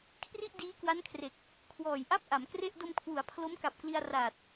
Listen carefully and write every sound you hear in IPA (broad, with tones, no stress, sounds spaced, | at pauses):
kʰ r i˥˩ ʔ d iː˦˥ k w a˦˥ n kʰ r e˨˩ k̚ | kʰ w ɔː˨˩ j ʔ a˥˩ p̚ ʔ a˩˦ m k r e˥˩ ʔ d o˧ m kʰ w u˩˦ a̯ pʰ l o˦˥ m k a˨˩ p̚ k l i˧ a̯ r aː˨˩ t̚